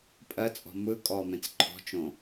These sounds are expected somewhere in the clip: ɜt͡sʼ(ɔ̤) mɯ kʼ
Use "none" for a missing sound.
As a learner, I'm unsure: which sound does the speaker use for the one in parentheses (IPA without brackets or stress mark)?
ɔ̤